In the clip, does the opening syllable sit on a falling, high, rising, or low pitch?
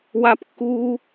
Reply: high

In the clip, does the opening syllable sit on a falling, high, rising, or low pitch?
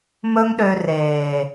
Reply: high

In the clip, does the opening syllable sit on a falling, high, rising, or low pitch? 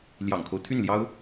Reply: low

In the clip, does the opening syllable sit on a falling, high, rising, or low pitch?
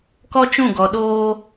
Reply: high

